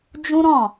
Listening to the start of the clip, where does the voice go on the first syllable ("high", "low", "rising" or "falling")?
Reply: high